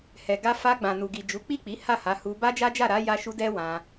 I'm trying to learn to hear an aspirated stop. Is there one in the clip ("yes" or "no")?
no